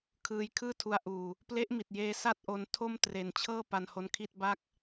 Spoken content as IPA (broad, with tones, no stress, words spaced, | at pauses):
kʰɯː˧jkʰɯː˥˩ tʰu˧a̯ʔuː˨˩ | ple˦˥ʔmi˨˩t̚jeː˧ sa˥˩t̚ʔo˧ntʰo˥˩m tre˨˩nt͡ɕʰɤː˥˩ pa˧nho˧nkʰi˥˩t̚ ba˦˥k̚